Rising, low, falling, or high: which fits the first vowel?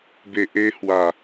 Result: low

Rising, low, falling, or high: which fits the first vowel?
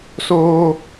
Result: high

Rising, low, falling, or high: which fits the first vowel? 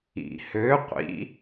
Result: low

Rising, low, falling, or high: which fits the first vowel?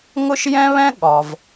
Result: high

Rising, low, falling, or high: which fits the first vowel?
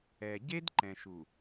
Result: low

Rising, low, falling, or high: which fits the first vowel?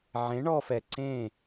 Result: rising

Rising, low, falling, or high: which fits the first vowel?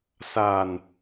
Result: low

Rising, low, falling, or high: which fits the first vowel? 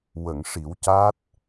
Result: low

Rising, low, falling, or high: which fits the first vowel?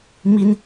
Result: high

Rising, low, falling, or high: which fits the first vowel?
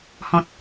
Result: low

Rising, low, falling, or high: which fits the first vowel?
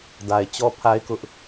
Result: low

